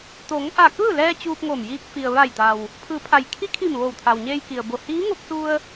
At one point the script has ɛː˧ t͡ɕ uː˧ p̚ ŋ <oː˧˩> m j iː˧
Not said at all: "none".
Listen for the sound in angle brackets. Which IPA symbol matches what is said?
oː˧˩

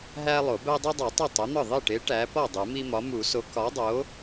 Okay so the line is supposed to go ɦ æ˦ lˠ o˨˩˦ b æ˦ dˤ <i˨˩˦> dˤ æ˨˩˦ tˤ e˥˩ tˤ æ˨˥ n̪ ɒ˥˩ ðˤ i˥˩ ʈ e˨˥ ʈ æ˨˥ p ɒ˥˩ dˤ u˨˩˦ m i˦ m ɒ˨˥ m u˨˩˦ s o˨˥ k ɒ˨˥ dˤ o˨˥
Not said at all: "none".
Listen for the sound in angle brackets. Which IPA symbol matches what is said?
i˦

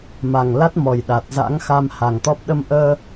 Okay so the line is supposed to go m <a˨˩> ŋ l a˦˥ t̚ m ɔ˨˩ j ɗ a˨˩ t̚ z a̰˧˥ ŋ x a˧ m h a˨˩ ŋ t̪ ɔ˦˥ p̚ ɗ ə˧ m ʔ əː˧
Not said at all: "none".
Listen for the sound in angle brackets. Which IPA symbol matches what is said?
a˨˩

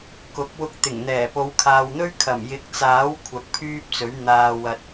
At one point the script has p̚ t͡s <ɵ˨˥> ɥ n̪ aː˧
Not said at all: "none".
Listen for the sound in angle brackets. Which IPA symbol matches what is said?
ɵ˨˥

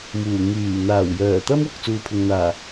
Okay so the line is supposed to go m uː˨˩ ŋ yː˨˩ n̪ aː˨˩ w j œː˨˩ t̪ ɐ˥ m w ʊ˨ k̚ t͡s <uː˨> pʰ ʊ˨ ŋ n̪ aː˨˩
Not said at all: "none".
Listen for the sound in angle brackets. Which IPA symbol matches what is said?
uː˧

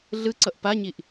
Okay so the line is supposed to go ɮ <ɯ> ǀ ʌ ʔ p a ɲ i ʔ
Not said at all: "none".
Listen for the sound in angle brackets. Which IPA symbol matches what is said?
ɯ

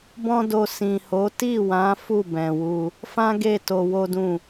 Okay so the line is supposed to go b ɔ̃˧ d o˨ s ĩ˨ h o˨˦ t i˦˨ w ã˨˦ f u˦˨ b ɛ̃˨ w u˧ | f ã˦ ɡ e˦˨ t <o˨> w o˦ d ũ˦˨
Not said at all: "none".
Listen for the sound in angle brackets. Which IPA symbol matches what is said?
o˧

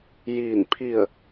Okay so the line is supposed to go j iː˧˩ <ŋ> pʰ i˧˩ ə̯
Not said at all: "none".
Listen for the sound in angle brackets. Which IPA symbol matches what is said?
n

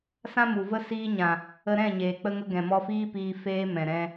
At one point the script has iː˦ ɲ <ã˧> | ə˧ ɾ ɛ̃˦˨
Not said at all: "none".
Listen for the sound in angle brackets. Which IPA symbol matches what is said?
ã˨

